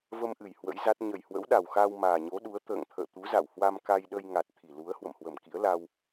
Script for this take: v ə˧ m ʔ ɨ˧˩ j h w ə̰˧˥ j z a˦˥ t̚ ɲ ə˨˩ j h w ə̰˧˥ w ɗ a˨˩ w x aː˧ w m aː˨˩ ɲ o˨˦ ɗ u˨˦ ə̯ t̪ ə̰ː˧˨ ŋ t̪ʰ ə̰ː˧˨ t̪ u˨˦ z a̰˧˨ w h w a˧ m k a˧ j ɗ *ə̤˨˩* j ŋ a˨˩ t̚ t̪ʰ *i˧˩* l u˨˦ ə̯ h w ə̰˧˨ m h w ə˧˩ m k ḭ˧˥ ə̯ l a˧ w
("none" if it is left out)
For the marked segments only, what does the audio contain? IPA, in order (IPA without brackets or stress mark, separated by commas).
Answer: ə˧, i˧˩